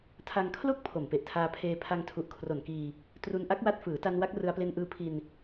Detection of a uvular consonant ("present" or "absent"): absent